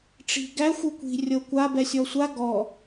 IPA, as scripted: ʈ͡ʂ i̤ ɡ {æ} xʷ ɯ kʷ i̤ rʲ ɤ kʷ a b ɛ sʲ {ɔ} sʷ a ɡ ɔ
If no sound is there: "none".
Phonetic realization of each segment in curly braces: æ, ɔ

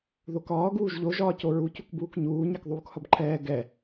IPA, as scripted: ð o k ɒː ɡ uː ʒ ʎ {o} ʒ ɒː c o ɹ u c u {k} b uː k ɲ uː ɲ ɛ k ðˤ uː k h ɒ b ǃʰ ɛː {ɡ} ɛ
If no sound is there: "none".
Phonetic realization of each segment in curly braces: o, k, ɡ

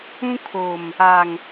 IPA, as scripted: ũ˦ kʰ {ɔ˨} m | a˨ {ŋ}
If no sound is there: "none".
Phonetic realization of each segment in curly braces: o˨, ŋ

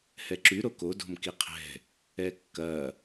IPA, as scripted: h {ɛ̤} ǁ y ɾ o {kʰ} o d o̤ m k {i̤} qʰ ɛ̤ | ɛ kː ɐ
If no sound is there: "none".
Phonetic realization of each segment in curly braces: ɛ, k, i

